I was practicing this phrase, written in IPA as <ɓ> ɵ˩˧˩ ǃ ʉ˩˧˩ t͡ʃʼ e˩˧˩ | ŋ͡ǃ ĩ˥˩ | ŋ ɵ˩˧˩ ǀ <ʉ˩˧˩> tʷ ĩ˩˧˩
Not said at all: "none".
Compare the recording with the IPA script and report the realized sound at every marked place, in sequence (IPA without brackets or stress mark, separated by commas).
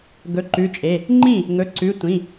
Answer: ɡ, ʉ˩˧˩